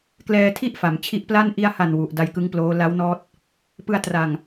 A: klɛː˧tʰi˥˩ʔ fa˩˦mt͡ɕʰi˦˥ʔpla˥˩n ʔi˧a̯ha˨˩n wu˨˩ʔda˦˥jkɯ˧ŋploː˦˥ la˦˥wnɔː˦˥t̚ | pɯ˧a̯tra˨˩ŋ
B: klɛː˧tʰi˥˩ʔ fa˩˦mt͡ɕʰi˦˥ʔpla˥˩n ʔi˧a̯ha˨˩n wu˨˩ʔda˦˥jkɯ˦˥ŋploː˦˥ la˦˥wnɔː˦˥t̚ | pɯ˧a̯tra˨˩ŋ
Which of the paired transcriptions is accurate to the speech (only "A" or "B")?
B